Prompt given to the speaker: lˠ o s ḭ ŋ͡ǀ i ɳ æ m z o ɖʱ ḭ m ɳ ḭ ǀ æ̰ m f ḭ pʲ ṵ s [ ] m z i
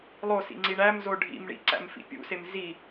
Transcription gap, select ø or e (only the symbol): e